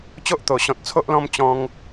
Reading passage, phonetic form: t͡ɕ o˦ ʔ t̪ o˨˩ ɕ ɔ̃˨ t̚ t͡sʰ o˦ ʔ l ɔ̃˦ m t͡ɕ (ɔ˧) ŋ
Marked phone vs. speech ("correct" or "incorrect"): incorrect